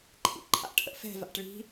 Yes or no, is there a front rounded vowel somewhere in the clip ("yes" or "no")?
no